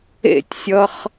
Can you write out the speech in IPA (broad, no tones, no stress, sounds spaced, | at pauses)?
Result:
ḛ tʲ sʲ ʌ χ